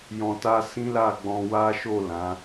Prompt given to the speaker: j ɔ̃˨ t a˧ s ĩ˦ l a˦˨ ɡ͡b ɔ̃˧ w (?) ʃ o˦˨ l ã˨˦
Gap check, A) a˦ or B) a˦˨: A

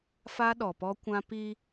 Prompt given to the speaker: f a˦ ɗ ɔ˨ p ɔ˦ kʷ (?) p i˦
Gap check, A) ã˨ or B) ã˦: B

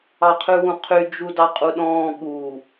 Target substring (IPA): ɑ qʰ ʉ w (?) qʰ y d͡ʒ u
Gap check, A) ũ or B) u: A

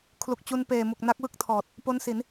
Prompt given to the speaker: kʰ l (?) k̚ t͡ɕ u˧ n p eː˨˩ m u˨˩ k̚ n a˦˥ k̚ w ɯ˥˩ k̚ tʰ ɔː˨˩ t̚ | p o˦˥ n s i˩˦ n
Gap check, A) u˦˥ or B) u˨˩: B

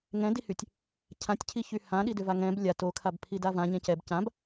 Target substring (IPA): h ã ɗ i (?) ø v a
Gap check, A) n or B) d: B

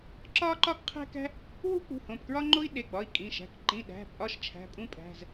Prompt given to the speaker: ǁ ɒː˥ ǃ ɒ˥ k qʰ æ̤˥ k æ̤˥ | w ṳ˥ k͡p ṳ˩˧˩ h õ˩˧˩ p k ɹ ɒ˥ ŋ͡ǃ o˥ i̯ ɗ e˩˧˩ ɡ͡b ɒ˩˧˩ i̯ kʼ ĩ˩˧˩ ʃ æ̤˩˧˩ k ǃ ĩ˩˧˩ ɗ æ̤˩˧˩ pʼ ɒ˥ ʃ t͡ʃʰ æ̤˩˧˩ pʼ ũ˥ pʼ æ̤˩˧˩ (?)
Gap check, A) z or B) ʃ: A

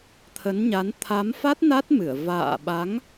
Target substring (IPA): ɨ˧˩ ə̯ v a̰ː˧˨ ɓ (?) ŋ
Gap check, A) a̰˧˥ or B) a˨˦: B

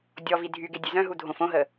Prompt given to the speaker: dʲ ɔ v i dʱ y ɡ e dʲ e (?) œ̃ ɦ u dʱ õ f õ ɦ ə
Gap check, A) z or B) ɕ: A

